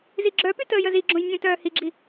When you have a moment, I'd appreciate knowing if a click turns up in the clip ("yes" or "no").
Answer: yes